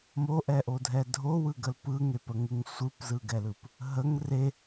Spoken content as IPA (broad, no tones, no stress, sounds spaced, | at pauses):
m o ʔ ɛ ʔ o dʱ ɛ dʱ o w ɯ ɡ ə l p ɯ ŋ e p ə ŋ ɯ ŋ sʷ ɯ p z ɯ ɡ ɛ l ɯ p | ɦ ə ŋ r e